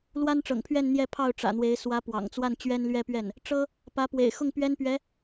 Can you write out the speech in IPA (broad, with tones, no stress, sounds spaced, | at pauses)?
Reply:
l w a˥ n ʈ͡ʂ ɤ̰˨˩ ŋ pʰ ɥ ɛ˥˧ n n̪ j ɛ˥˧ pʰ ɑ˥˩ ʊ̯ ʈ͡ʂ ä̰˨˩ n̪ w e˧˥ ɪ̯ s w ä˧˥ p w ɑ̰˨˩ ŋ t͡s w a˥˩ n t͡ɕ ɥ ɛ˥ n l ɥ ɛ˥ p ɥ ɛ˥˩ n | ʈ͡ʂ ɤ˥ | p ä˧˥ p w ḛ˨˩ ɪ̯ x ʊ˥˩ ŋ p ɥ ɛ˥ n p ɥ ɛ˧˥